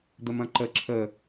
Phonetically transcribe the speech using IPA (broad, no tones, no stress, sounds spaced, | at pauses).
d̪ ə m ɐ̃ ǃ ə ǁʰ ə